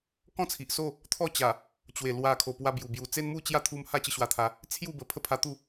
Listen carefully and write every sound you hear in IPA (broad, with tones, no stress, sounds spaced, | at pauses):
k ɔ̃˥˧ t͡sʰ i˨ ʔ s o˥˧ | t̪ʰ ɔ˥˧ t͡ɕ a˨˩ | t͡ɕ w e˨˩ l w a˨˩ kʰ o˨˩ p w a˧ b j u˨˩ b j u˨˩ t͡s e˦ n m u˥˧ t͡ɕ j a˥˧ t̪ʰ u˧ m h a˦ t͡ɕ ə˧ ɕ w a˨˩ t̪ʰ a˨˦ | t͡sʰ j u˥˧ b ə˨˩ pʰ ə˥˧ pʰ a˧ t̪ u˥˧